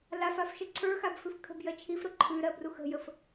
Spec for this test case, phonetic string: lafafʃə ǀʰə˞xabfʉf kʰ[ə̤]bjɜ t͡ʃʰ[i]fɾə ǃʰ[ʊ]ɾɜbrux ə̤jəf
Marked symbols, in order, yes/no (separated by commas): yes, yes, no